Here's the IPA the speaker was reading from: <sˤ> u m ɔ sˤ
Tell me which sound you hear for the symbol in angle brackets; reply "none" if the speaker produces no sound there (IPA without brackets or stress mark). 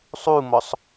sˤ